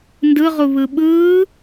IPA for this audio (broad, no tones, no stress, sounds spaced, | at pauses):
n d ɯ ʁ u β ɯ ɓ ɯː